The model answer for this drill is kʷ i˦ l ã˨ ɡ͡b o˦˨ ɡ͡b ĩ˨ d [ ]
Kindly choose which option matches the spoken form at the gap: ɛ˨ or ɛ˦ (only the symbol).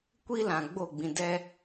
ɛ˦